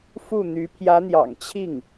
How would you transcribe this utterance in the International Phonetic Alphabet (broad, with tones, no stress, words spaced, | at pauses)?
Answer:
fu˥˩n̪y˧˥ pʰjä˧˥n̪jɑ̰˨˩ŋt͡ɕʰi˥˩ŋ